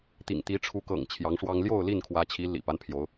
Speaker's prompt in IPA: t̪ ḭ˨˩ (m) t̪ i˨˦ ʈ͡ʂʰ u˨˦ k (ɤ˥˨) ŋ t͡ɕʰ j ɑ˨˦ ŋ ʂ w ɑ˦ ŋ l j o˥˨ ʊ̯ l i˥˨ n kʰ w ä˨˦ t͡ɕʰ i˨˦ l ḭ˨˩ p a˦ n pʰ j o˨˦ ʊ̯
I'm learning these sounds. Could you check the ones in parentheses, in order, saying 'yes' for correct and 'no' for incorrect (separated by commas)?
no, no